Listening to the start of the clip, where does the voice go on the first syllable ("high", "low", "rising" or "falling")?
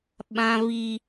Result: high